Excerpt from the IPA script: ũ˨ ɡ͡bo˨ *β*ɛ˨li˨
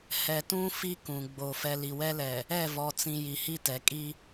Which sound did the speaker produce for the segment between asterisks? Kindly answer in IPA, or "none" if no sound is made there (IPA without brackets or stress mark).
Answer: f